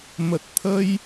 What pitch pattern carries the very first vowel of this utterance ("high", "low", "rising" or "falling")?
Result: low